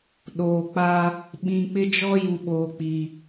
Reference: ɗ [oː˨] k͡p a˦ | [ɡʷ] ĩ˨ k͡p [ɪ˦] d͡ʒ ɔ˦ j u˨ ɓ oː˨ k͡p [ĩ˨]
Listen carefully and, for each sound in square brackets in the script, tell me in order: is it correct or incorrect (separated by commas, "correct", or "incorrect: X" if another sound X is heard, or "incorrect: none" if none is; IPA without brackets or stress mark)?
correct, incorrect: ɓ, correct, incorrect: i˨